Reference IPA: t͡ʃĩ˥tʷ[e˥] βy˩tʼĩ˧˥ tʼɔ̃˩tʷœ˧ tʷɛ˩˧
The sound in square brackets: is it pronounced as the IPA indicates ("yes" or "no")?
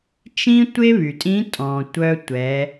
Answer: yes